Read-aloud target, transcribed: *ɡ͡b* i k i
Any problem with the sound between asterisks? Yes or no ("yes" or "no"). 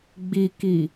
no